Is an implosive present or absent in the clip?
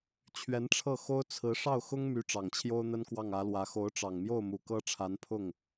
absent